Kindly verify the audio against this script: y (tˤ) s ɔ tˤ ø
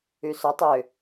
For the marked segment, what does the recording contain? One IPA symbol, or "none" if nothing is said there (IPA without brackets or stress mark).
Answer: none